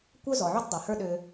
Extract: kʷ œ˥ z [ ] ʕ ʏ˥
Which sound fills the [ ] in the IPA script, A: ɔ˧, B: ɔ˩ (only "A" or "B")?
B